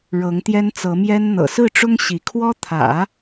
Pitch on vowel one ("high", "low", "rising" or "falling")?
rising